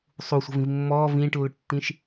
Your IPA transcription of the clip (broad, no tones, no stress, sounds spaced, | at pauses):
sˤ u sʷ ə̤ v ĩ v mː ɔː v ĩː ʈ lː ʊ ʈ tː ĩ ʃ